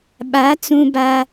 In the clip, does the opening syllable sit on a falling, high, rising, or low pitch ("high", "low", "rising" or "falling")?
rising